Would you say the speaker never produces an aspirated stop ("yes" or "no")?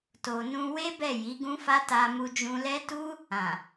yes